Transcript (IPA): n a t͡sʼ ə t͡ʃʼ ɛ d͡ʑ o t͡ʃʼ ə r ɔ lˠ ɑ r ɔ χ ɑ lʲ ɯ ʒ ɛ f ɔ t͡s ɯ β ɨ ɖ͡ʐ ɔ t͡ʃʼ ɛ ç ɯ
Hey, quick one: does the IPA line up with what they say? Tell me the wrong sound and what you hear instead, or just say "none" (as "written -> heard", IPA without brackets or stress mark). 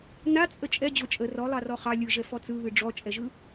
ç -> ʒ